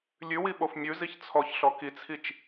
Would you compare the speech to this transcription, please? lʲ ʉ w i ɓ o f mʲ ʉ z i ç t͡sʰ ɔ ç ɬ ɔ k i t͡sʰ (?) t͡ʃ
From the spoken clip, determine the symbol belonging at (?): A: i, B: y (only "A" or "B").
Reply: A